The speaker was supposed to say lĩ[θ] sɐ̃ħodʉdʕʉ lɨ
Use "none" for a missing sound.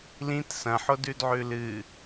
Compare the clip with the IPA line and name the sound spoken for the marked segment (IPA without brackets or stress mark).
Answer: t